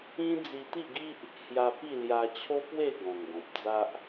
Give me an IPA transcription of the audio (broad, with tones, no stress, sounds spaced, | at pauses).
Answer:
ĩ˦ d͡z i˧ t̪ i˥˧ ɡ i˦ ʔ | h j a˧ p i˥˧ l j a˧ t͡ɕʰ o˦ p w e˥˧ ɡ ɔ̃˨˩ ŋ ɡ ɔ̃˨ p̚ d͡z a˦ ʔ